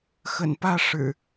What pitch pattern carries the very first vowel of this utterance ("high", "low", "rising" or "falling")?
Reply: low